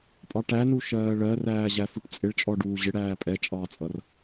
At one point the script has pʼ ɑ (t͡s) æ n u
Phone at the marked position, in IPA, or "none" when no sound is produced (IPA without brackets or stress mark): ʈ